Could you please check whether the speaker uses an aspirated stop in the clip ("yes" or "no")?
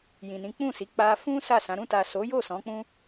no